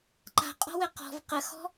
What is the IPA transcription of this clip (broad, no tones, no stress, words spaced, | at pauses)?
ǃa̤qʼɔ̤wɘ qɔ̤v qəxɔ̤